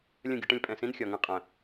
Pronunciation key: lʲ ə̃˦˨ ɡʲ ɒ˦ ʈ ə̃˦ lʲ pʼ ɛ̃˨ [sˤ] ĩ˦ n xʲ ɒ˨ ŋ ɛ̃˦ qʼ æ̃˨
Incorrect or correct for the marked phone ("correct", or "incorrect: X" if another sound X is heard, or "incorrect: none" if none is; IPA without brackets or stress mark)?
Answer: incorrect: s